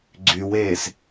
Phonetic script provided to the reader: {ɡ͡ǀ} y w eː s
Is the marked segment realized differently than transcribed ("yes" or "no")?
no